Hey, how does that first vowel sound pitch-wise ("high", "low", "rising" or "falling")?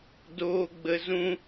low